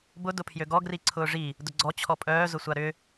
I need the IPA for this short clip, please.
b ʊ d ʊ pʰ j ø ɡ ɔ ɡ r i ǀʰ ʊː ʐ i | d ʊ ɡ͡ǀ ɔ t͡ɕʰ ɔ pʼ œː z ʊ sʷ a ɾ ʏ

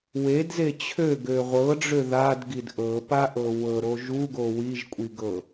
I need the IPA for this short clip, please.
w e d z e t͡ɕʰ ø ɡ ø ʁʷ ɤ ɖ͡ʐ ø ð a d ɡ i d ʔ ɤ p a ʔ ɤ w ɤ ɾ o ʒ u ɡ o w i ʒ kʷʼ i ɡ ɤ

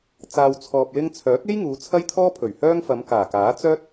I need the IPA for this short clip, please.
t͡s aː˧ w t͡sʰ ɔː˧ p̚ l ɪ˥ ŋ t͡sʰ œː˨˥ k̚ e˥ j ŋ uː˨˧ t͡sʰ ɐ˥ j t̪ʰ ɔː˥ pʰ ɵ˨˩ ɥ h œː˥ ŋ f ɐ˨˧ m k aː˨˩ k aː˨˥ t͡s œː˥ t̚

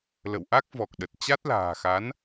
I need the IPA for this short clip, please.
l ə̰˧˨ w ʔ a˦˥ k̚ v ɔ˨˩ k̚ ɗ ə˨˩ t̚ t͡ɕ a˦˥ t̚ l a̤ː˨˩ x a˨˦ n

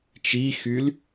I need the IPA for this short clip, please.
t͡ʃ i x y l

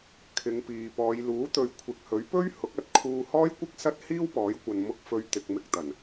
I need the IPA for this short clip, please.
kʰ ɪ˨˧ ŋ p iː˨ p ɔː˨˧ j l uː˨˥ t̪ ɵ˨˧ ɥ kʷʰ ɪ˨ k̚ h ɵ˨˥ ɥ p ɵ˥ ɥ h ʊ˨˥ k̚ ɐ˨˥ t̚ kʰ uː˧ h ɔː˥ j kʷ ɪ˥ k̚ s ɐ˥ t̚ h iː˥ w p ɔː˨˥ j kʷ ɐ˨ n m ʊ˧ k̚ f ɵ˨ ɥ t̪ ɪ˨ k̚ m ɪ˧ k̚ t̪ ɐ˨˩ n

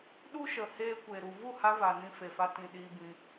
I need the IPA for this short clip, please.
ɗ u˦ ʃ ə˨ h eː˧ kʷ e˨ ɾ u˨ v u˦˨ h a˧ v a˨ n ĩ˧ f e˨ f a˧ t ĩ˨ ɗ iː˧ b ĩ˧

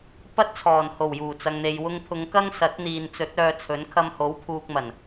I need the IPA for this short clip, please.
p ɐ˥ t̚ t͡sʰ ɔː˨˩ n h o˨˩ w j uː˨˩ t͡s ɐ˨ ŋ n̪ e˨ j w ʊ˧ ŋ pʰ ʊ˨˧ ŋ k ɐ˥ ŋ s ɐ˨˥ t̚ n̪ iː˨ n t͡s ɵ˨˥ t̚ œː˧ t͡sʰ ɵ˨˥ n kʰ ɐ˧ m h o˨˥ w pʰ uː˧ k̚ m ɐ˨˩ n

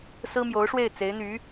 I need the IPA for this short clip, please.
s ɹ̩˥ m j o˧˥ ʊ̯ ʂ w e˥˩ ɪ̯ t͡s e˧˥ ɪ̯ n̪ y˧˥

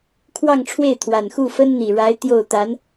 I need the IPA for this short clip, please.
kʰ w ɑ˥˧ ŋ ʈ͡ʂʰ w e˥˩ ɪ̯ t̪ʰ w a˨˩ n x u˥˩ f ə˥ n n̪ i˨˩ ɻ a˧˥ ɪ̯ t̪ j o˥˩ ʊ̯ t̪ a˧˥ n

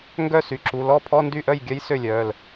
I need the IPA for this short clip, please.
ŋ ɡ œ˥˩ s y˩˧˩ ǁ u˩˧˩ l ɔ˥˩ pʰ ɔ˧˥˧ n d y˥˩ ʔ œ˥˩ j ɡʲ œ˧˥ j s ø˥˩ lʲ œː˩˧˩ l

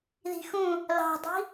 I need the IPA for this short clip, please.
ð i̤ x ũ | l ɑ̤ dˤ i̤

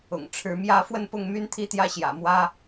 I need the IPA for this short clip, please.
ʊ̰˨˩ ŋ ʈ͡ʂʰ ɻ̩˧˥ m j ä˧˥ f w ə˥˧ n p ʊ˥˩ ŋ m y˥ n t̪ʰ i˥˧ t̪ j ä˥˩ ɕ j ä̰˨˩ m w ä˥

